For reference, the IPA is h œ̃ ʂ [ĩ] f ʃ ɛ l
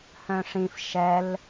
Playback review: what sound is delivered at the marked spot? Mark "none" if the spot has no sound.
ĩ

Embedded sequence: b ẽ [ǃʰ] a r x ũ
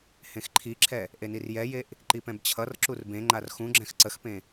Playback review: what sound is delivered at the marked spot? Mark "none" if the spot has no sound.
ŋ͡ǃ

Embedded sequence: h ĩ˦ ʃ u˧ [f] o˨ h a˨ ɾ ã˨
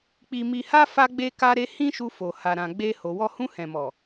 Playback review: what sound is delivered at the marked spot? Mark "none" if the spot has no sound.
f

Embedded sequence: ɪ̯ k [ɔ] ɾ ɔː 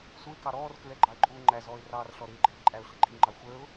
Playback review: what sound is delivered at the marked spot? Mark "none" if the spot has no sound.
ɑ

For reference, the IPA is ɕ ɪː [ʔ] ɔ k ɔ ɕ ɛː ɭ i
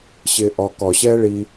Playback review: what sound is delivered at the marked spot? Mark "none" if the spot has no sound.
ʔ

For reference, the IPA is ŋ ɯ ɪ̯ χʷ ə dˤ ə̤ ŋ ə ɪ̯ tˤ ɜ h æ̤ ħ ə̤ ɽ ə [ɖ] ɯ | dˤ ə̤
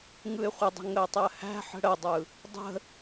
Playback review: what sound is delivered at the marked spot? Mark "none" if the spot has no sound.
dˤ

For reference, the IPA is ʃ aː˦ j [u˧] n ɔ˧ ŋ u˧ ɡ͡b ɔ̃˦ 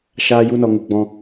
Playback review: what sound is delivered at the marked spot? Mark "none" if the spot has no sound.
u˦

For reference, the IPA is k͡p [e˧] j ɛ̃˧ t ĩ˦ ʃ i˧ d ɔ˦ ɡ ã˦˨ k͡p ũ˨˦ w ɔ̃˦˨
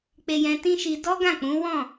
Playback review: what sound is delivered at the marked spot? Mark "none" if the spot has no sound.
e˧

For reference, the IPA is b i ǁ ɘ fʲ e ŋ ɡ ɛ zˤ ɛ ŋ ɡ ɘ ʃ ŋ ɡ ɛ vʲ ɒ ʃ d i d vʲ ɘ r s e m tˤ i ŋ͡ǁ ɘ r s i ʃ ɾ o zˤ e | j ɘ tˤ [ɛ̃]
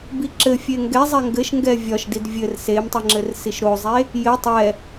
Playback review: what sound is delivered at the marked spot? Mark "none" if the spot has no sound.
ɛ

